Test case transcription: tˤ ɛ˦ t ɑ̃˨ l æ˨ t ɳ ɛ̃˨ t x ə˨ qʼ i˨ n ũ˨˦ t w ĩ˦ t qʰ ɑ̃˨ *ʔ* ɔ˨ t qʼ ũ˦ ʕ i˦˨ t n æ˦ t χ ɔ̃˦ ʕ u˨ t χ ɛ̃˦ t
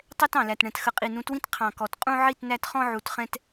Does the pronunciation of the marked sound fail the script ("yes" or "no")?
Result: yes